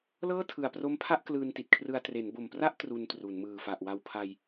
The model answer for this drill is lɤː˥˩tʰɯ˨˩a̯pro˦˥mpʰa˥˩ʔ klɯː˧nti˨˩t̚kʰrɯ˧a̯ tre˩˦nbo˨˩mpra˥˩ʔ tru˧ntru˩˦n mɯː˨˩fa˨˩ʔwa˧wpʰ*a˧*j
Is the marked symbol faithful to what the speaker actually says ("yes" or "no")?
yes